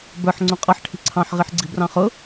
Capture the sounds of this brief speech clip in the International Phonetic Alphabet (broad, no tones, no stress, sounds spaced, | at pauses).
b ə˞ ħ ŋ͡ǀ ũ qʼ ʌ ħ ʈʰ i̤ ǀʰ ɑ̃ ħ ʁ i ħ ɡ͡ǀ i̤ b r ɑ̃ χ ʊ